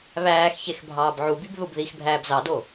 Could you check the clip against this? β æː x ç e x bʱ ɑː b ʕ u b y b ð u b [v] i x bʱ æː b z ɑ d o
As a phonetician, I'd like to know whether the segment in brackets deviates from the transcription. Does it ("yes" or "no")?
yes